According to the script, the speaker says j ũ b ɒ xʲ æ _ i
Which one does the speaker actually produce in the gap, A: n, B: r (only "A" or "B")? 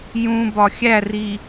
B